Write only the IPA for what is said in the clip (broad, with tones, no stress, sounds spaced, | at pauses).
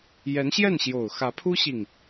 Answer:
j ɛ˧˥ n ɕ j ɛ˥˩ n ɕ j o˨˩ ʊ̯ x ä˧˥ pʰ u˥ ɕ i˨ ŋ